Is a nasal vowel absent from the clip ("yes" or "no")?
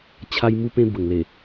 no